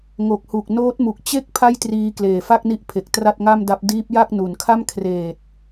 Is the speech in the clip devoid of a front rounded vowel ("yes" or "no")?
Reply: yes